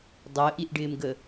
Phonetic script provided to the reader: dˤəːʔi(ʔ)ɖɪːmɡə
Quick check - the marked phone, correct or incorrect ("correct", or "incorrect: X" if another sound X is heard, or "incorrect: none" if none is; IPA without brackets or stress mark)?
correct